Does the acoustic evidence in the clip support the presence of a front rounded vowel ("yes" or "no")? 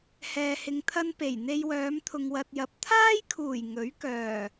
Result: yes